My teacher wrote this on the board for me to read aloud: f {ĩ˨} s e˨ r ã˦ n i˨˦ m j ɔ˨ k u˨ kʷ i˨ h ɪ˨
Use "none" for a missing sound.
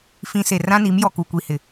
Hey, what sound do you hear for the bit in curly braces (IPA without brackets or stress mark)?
ĩ˨